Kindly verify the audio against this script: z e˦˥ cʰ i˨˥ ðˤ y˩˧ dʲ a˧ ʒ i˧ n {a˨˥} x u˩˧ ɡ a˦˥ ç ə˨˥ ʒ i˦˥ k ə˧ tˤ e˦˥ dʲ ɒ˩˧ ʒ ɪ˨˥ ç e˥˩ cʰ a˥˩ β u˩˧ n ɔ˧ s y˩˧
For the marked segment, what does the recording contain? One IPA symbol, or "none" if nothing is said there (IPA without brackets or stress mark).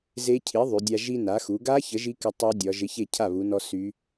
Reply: a˩˧